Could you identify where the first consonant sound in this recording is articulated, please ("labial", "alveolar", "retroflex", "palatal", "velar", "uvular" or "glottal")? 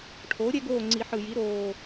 retroflex